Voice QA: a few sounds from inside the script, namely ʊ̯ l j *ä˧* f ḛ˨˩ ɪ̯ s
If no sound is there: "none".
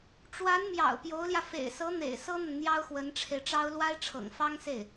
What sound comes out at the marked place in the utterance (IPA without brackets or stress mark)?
ä˧